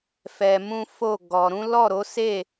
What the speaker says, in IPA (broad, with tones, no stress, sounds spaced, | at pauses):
f ɛ˧ m ũ˦ f o˦˨ ɡ ɔ˧ ɾ ũ˦ l ɔ˦˨ ɾ o˨˦ s e˦˨